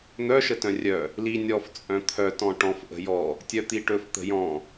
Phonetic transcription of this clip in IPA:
n̪ œ ʃ ə t œ̃ rʲ œ | l i nʲ ɔ f t͡sʼ œ̃ t̪ʰ œ t ɔ̃ ʈ ɔ̃ f ʔ ə̤ j ɔ | tʲ œ t̪ i ʈ ɵ f t̪ ə̤ j ɔ̃

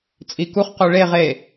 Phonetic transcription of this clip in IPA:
t͡sʼ i k u χ q u ɭ e ʁ e

